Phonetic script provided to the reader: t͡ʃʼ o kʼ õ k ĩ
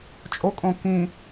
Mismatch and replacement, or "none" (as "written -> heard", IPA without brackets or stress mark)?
none